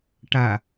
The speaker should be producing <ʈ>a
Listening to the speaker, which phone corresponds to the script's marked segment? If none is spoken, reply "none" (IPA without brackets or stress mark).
ʈ